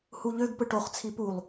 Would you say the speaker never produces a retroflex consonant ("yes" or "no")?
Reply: no